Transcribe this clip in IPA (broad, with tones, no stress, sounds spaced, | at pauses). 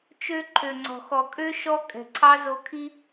t͡ʃ ø˦ ǃʰ ø˨ ŋ͡ǀ ɔ̤˨ x ɔ˨ kʼ ø˦ ʃ ɔ˦ kʼ ɛ̤˨ ǀʰ ɑ˦ z o˧ kʰ i˦